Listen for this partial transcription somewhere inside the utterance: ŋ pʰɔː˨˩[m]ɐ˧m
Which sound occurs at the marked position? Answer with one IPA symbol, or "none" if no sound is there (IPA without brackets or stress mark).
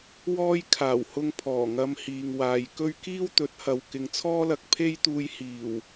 ŋ